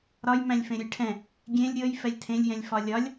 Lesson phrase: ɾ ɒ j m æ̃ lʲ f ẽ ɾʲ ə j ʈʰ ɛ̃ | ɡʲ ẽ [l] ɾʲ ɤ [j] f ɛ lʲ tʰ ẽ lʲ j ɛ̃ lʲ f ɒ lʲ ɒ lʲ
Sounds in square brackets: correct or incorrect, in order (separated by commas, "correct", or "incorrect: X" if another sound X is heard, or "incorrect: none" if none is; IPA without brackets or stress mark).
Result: incorrect: lʲ, correct